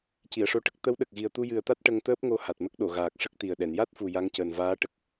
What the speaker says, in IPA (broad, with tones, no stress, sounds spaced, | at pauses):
c i˨˩˨ ə̯ ʂ o˧ ʈ ə˦˥ k̚ t̪ ə˧˥ w ɗ ə˨˩ k̚ ɣ i˨˩ ə̯ t̪ u˧ j ɨ˨˩ ə̯ t̪ a˦˥ t̚ ʈ ə˧ ŋ t̪ əː˦˥ p̚ ŋ o˧ h a˨˩ t̚ m ə˦˥ k̚ ɗ o˨˩˨ ɣ aː˨˩ k̚ ʂ ə˦˥ k̚ t̪ i˨˩ ə̯ ɗ ɛ˨˩˨ n j a˦˥ t̚ f u˨˩ j a˧˥ ŋ c əː˨˩ n v aː˧˥ ʈ ə˨˩ k̚